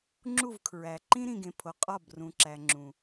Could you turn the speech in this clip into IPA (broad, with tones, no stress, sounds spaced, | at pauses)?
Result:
ŋ͡ǁ u˦˨ v kʰ ɹ æ˨ ǃ ĩ˦ ɾ ĩ˨ ɡ ẽ˨ pʰ o˨ qʼ ɒ˦˨ b r ũ˨ ǁ æ˨ ŋ͡ǁ ũ˨